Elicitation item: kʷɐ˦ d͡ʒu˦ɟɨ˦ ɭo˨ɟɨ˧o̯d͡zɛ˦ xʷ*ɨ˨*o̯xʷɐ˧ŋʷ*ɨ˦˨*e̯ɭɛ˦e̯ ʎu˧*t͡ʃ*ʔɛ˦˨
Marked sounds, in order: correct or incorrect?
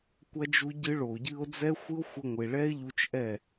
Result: incorrect: ɨ˦, incorrect: ɨ˨, correct

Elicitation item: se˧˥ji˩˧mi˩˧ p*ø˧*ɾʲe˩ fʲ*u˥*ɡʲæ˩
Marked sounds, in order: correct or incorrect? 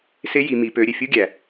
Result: incorrect: ø˩˧, correct

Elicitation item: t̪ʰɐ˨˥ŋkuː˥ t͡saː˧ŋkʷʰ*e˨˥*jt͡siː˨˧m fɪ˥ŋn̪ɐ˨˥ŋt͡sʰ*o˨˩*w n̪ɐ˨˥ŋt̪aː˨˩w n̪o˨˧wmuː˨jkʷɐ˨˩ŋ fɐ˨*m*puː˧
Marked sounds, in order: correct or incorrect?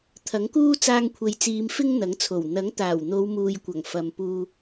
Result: incorrect: e˨, correct, correct

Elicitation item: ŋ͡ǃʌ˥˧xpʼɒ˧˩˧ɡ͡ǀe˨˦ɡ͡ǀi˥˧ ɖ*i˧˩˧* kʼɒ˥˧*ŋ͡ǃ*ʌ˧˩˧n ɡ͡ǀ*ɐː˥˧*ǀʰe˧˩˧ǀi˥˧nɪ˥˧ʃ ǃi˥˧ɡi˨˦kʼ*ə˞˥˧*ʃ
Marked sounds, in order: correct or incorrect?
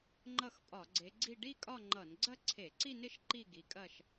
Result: incorrect: i˥˧, correct, incorrect: ɐ˥˧, incorrect: ɐ˥˧

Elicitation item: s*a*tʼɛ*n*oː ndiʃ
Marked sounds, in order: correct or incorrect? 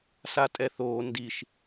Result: correct, incorrect: θ

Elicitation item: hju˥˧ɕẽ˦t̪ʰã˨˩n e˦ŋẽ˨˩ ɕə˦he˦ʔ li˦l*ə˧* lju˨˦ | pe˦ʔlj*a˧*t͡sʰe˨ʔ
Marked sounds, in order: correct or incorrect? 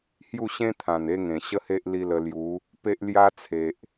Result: correct, incorrect: a˦

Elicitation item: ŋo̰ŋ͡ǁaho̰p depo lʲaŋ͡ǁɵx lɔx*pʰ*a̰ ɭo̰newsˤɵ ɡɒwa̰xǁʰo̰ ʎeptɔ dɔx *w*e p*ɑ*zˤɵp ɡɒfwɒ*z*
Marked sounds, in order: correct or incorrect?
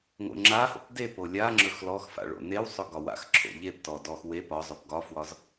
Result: incorrect: f, correct, incorrect: ɒ, correct

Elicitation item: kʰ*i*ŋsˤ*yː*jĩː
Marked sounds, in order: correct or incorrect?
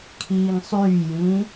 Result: incorrect: iː, correct

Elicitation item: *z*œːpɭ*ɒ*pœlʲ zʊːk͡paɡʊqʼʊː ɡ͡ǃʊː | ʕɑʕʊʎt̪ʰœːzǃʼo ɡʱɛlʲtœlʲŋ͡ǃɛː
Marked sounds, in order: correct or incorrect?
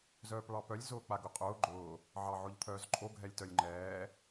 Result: correct, incorrect: ɑ

